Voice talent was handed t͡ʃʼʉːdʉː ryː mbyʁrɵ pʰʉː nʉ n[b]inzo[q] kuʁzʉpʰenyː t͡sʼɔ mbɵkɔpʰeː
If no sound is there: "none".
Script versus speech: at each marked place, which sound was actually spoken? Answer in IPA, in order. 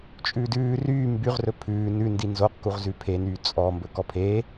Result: d, q

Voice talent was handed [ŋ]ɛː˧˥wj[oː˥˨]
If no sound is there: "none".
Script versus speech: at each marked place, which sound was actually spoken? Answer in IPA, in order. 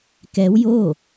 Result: k, oː˥˨

